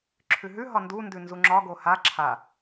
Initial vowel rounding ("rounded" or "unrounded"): rounded